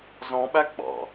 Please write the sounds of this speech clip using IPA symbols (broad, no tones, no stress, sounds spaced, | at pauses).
z ɔ̃ ɓ æ ɡ͡b ɑ̰